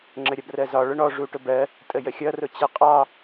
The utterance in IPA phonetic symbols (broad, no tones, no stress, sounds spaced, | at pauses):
ŋ͡ǁ ə ɾʲ ʌ b r ɜ z ɒ ɭ ʊ ɳ ɔ ʐ u ʈ ʊ b ɜ | tʼ ə j ə xʲ ʌ r ʊ t͡ɕ ɛ qʼ ɑ